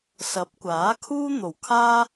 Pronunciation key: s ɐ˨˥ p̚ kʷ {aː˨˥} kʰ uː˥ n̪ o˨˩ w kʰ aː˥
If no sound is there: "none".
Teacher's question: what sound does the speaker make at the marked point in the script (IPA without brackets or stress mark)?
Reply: aː˨˥